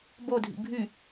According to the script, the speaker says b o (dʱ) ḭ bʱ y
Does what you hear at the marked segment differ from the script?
no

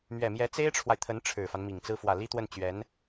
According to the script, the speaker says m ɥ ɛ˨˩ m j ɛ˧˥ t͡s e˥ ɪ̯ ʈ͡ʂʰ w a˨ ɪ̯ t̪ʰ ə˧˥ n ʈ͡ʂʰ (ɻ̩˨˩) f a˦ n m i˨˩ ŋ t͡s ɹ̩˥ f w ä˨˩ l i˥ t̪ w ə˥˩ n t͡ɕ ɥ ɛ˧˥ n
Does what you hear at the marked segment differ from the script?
no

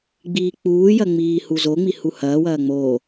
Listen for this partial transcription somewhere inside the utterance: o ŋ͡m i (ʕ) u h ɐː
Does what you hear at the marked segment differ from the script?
yes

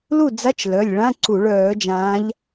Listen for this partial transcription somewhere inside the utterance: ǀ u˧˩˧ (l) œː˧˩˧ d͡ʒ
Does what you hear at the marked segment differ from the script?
yes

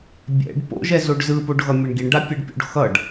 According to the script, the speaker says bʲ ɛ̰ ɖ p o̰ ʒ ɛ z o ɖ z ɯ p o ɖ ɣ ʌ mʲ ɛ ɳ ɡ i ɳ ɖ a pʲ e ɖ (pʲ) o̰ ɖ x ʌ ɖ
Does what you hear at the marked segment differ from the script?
no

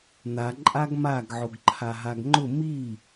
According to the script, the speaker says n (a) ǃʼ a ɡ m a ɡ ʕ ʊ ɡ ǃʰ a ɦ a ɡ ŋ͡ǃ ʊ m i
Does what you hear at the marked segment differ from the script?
no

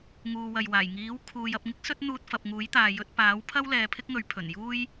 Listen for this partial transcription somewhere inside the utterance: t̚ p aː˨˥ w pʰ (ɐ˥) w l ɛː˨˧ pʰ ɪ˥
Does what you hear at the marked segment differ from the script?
no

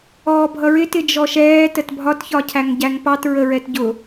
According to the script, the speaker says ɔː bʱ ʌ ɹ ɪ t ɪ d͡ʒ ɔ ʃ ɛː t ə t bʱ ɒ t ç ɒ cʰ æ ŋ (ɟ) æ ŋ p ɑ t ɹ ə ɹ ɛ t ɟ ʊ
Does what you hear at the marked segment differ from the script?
no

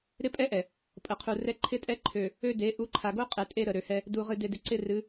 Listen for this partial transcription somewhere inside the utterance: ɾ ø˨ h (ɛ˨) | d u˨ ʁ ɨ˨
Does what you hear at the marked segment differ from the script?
yes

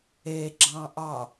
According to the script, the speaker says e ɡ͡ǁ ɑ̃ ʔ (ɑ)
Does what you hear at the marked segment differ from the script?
no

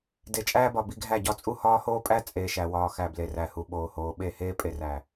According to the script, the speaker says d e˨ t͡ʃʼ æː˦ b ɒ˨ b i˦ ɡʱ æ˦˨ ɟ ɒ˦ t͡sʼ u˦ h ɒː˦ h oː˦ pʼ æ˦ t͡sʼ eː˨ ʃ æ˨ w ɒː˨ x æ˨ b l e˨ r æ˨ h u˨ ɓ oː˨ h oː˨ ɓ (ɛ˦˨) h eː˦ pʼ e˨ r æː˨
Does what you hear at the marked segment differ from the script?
yes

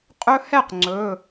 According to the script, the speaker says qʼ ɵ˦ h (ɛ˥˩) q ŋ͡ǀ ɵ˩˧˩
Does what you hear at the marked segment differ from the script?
no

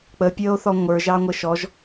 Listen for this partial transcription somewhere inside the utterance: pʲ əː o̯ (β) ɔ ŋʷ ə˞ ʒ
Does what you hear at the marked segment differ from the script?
yes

